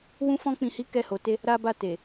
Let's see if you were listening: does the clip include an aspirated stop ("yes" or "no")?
no